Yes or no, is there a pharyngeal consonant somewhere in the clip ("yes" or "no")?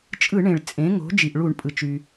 no